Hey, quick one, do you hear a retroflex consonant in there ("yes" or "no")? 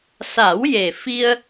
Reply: no